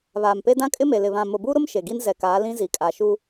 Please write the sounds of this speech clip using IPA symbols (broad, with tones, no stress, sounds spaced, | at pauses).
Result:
β aː˨ m p e˦ d ã˦ kʼ ɪ˦ m e˨ l ɪ˨ β ã˨ m ʊ˨ b u˦ ɾ ʊ˦ m ʃ e˨ ɡ i˦ n z ɛ˨ k aː˨˦ l ĩ˦ z i˨ kʼ a˨ ʃ uː˦